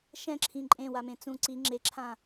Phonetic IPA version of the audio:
ʃ ɛ̃ ǁʰ ĩ ǃʼ ẽ w a m ẽ t͡s ũ ǀ i ŋ͡ǁ e ǁʰ ã

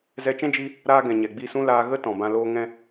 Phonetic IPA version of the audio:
z ɛ˧ t͡ʃ ɛ̃˦ d͡ʒ i˦ | ɾ aː˦ ɡ ɛ̃˨ ɲ ɛ˨ ɡ͡b i˦˨ s ũ˦ l aː˧ ɣ ə˦ t ɔ̃˨ b ã˧ l oː˦ ŋ ɛ̃˦

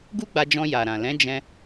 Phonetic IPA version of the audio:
ɡ u˦ ɡ͡b a˧ d͡ʒ ɔ̃˧ j a˨ ɾ ã˨ l ɛ̃˨˦ d͡ʒ ɛ̃˧

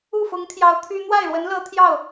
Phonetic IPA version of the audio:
u˥˩ f ʊ˧˥ ŋ t̪ʰ j ɑ˧˥ ʊ̯ t̪ʰ y˥ n̪ w a˥˩ ɪ̯ ɻ w ə˧˥ n l ɤ˧˥ t̪ʰ j ɑ˥˩ ʊ̯

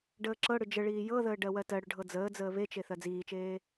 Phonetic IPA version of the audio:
ɖ əː ǁ ɤ ɽ ʏ d͡ʒ ə ɭ iː j ɤ ð əː ɖ ɜ w ɜ t ɜ ɽ ʏ ɖʱ ɤ d͡z əː d͡z əː β e t͡ʃ e θ ɜ d͡z iː t͡ʃ eː

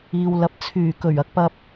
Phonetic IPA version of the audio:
iː˨ w l ɐ˨ p̚ t͡sʰ yː˨˩ k ɵ˨˩ ɥ ɐ˨ k̚ p ɐ˧ p̚

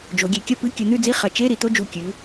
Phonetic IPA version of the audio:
d͡ʒ o˩˧ ɡʲ e˩˧ kʲ ɐ˥˨ p ɨ˧˥˧ kʲ ɵ˧˩˧ n̪ ʉ˥˨ d͡z i˧˥˧ χ ɐ˩˧ t͡ʃ e˧˥˧ ɾ i˩˧ t̪ o˧˥˧ d͡ʒ u˧˩ kʲ ʉ˩˧

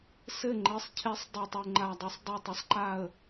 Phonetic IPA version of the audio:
s ɘ˥˨ ŋ͡ǃ ɘ˨˦ sˤ cʰ e˨˦ sˤ dˤ o˥˨ tˤ u˥˨ ŋ͡ǃ a˥˨ dˤ o˥˨ sˤ dˤ o˥˨ tˤ ɐ˨˦ sˤ ǃ a˥˨ ə̯

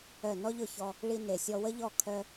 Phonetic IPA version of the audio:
œ˦˨ n ɔ˦ ʎ ʊ˦˨ ç ɔ˧ | ɭ i˧ n e˨ sʲ ɔ˧ w ə˦ ʎ ɔ˦˨ kʰ œ˦

